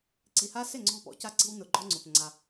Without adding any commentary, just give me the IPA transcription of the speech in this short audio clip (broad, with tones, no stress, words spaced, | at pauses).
ǀi˨ha˦sɪ˦˨ ŋ͡ǀɔ̤˦pɔ̰˨˦ca˦ǀi̤˦w nʊ˨ɡ͡ǃɔ˦ŋ͡ǀʊ˨p ŋ͡ǀa˦